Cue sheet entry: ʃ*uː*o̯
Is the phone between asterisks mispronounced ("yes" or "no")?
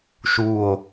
no